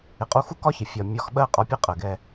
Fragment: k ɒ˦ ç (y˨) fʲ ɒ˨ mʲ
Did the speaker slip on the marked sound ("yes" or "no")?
yes